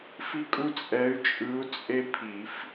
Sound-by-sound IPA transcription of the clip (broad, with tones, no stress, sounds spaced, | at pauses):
f i˦ kʼ u˦ t͡sʼ ɛ˨˦ y̯ t͡ʃʼ ɯ˨˦ u̯ t͡sʼ e˦ pʰ i˨˩˦ f